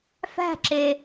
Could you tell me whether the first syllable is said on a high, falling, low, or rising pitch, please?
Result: falling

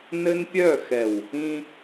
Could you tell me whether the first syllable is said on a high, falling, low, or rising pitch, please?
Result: high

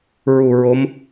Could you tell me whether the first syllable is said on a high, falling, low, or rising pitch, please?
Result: low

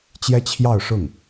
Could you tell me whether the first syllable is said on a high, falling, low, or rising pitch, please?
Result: high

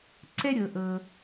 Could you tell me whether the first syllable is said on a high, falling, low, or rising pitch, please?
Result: high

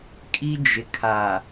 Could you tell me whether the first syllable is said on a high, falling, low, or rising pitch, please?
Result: high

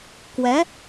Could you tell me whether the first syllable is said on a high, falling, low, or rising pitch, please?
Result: rising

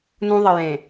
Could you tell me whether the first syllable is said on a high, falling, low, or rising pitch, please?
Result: high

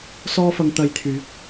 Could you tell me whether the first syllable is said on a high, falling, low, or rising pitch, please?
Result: high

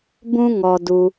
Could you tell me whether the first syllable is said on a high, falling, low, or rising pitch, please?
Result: high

